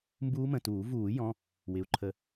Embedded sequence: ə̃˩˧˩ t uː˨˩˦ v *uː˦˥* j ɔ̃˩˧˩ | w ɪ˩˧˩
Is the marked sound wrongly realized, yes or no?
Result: yes